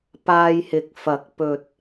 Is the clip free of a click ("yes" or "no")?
yes